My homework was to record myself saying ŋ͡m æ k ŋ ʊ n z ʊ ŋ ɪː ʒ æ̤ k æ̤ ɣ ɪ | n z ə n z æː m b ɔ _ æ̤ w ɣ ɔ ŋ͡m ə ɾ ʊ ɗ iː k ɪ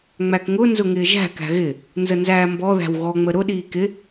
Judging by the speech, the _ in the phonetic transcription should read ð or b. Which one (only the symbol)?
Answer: ð